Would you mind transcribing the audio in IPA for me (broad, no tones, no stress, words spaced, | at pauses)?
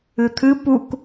ɨt̪ʰɨ puk